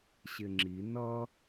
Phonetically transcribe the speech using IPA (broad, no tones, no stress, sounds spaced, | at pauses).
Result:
ɕ ɪ ŋ͡ǁ i n ʌ